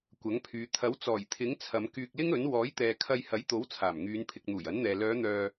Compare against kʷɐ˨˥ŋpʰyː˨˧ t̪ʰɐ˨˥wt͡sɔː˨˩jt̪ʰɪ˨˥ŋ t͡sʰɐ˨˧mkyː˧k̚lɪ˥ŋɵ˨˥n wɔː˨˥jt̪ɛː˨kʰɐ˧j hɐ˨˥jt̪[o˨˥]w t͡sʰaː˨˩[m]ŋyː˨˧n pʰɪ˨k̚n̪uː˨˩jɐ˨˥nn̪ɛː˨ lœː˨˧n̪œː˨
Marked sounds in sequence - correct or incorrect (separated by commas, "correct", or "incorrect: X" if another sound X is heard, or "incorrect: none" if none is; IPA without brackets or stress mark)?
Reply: correct, correct